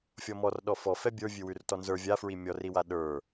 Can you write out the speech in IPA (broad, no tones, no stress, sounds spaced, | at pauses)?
fʲ ɔ m ɔ r ɗ ɔ f ɔ f ɛ bʲ ə˞ vʲ ʉ w ʉ r t ɔ n z ə˞ vʲ a f ɹ i mʲ ɔ r i w a ɗ ə˞